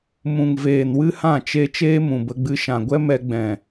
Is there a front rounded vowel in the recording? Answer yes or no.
no